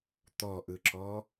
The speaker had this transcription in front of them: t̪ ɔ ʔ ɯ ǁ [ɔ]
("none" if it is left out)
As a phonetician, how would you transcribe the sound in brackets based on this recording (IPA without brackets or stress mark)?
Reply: ɔ